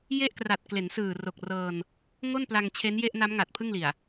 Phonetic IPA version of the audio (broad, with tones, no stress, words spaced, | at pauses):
je˥˩ʔkra˨˩t̚ kle˩˦nsɯː˨˩ro˨˩k̚rɤː˧n | ŋo˥˩npla˧ŋ t͡ɕʰe˦˥nje˥˩ʔna˦˥mŋa˨˩t̚ pʰɯ˥˩ŋli˨˩a̯